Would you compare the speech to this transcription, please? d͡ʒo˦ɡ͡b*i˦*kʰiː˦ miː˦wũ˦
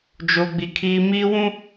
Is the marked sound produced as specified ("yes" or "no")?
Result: yes